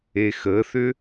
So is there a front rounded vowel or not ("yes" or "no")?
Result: yes